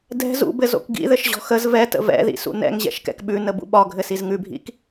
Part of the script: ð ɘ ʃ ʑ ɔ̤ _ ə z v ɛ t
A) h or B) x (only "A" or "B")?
B